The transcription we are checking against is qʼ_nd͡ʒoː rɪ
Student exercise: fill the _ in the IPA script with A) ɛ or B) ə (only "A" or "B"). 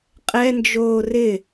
A